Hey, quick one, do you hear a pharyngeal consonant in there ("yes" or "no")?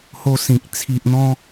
no